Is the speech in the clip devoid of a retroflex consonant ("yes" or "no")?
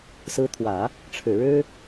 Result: no